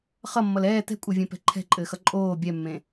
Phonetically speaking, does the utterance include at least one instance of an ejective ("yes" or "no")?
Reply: yes